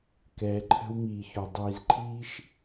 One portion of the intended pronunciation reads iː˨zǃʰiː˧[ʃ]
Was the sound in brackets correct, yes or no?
yes